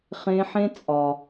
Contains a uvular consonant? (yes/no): yes